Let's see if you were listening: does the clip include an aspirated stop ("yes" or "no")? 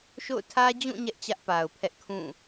yes